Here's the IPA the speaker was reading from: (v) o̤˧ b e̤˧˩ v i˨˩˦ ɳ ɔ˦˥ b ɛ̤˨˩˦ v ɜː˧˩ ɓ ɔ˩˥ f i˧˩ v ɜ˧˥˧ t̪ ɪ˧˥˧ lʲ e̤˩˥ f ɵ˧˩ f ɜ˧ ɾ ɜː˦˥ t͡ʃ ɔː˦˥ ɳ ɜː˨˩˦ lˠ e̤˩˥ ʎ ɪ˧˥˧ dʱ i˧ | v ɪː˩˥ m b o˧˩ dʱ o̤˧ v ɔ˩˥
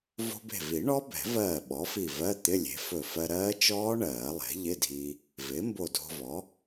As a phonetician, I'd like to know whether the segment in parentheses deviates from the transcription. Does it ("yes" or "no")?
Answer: no